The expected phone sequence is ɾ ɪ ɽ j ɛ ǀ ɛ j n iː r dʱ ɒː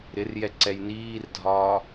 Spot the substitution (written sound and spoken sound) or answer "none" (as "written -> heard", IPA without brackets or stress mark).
ɽ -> r